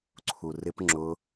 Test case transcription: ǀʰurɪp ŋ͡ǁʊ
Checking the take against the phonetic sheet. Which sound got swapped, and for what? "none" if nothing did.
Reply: none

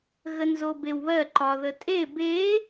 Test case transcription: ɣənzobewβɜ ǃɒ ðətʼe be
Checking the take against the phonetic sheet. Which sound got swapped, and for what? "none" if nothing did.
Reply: none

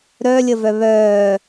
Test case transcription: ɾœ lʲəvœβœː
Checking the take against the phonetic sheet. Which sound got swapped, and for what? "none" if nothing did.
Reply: none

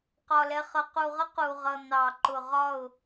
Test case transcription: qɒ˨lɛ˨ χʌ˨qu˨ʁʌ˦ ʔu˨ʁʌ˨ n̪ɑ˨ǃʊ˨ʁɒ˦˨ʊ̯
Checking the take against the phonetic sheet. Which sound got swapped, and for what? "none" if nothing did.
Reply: ʔ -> q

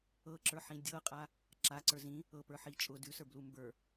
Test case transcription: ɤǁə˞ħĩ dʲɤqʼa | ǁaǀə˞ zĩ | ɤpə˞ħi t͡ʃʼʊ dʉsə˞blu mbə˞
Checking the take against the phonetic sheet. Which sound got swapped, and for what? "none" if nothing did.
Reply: none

